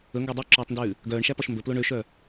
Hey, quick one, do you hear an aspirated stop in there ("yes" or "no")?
no